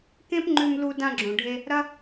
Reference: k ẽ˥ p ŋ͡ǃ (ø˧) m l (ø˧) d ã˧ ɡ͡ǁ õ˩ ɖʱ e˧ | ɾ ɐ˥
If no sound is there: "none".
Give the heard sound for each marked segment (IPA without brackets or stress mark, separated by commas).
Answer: ʉ˧, u˧